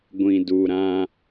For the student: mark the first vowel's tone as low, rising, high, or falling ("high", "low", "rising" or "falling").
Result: low